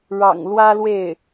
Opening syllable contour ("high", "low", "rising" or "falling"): low